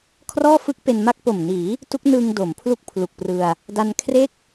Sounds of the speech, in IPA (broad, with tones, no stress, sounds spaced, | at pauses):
kʰ r ɔː˥˩ f ɯ˦˥ k̚ p e˧ n m a˦˥ k̚ p o˨˩ m n iː˩˦ | t u˦˥ k̚ n ɯ˧ ŋ d o˩˦ m pʰ l u˥˩ k̚ pʰ l u˨˩ k̚ p r ɯ˧ a̯ | d a˧ n kʰ r e˥˩ k̚